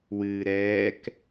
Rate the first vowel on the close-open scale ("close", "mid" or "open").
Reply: close